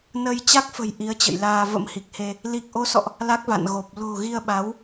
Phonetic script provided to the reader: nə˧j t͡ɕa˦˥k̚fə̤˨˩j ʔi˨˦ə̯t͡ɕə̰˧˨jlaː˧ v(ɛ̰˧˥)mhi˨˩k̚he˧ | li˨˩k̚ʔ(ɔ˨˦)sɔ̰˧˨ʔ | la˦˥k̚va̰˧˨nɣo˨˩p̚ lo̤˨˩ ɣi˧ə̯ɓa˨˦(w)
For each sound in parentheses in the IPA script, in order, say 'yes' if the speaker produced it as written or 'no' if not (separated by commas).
no, no, yes